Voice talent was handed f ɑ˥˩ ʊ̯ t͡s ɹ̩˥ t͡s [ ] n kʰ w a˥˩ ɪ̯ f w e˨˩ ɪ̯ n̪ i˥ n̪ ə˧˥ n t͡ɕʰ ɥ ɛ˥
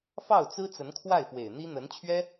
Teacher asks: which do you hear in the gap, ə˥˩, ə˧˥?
ə˧˥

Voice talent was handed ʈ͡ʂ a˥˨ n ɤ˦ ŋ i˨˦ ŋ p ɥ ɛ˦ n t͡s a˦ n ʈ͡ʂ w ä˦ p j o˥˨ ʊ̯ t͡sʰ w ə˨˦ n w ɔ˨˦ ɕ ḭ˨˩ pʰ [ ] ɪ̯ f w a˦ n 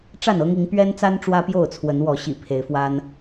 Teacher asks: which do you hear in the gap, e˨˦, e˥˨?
e˨˦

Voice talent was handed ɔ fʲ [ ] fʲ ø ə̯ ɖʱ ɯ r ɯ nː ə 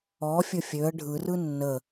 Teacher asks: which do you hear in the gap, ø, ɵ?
ɵ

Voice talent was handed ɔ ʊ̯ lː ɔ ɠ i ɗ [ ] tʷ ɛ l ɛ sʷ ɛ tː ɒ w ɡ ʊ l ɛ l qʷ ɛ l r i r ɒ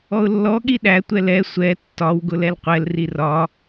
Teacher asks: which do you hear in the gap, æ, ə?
æ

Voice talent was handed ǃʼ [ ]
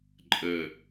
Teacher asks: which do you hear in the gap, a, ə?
ə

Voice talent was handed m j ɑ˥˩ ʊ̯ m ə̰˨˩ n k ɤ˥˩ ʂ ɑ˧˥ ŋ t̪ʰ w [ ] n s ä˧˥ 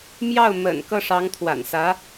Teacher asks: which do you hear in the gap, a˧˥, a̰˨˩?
a̰˨˩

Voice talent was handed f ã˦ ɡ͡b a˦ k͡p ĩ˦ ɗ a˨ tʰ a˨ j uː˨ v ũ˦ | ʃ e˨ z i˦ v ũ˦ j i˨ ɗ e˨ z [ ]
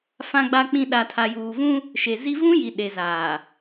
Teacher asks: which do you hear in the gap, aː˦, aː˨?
aː˨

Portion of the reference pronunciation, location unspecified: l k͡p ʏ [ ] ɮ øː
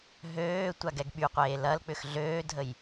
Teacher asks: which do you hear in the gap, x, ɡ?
x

